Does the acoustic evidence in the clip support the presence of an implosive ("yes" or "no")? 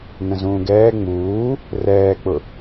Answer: no